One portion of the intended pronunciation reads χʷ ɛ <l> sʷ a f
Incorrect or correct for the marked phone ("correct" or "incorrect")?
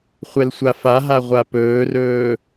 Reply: correct